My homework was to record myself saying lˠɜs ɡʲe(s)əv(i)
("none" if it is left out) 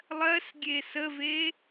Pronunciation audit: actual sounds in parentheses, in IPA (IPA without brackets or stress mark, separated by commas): s, e